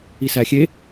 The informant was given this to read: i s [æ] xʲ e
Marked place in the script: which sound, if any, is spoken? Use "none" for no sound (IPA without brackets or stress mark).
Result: æ